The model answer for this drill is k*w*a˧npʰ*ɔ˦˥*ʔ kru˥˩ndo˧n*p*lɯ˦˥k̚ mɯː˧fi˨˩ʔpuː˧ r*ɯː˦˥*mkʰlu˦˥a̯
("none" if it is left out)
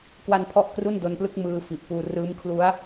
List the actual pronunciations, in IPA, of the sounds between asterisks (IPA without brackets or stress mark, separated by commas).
w, ɔ˦˥, p, ɯː˦˥